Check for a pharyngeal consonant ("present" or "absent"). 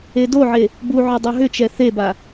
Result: present